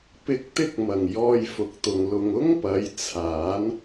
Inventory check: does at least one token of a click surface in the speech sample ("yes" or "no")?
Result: no